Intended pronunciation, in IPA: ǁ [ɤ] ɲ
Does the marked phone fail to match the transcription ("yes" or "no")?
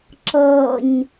no